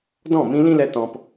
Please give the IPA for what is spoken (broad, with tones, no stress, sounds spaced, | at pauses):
d ɔ̃˦˨ m ĩ˧ l ĩ˦ l ɛ˧ t ɔ̃˧ p